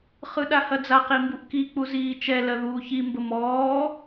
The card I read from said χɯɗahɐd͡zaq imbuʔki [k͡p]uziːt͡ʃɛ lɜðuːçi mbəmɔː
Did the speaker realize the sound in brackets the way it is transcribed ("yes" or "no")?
yes